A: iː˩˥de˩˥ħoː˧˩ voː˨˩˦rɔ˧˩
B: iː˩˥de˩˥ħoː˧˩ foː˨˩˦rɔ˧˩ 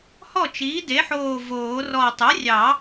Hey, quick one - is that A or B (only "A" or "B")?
A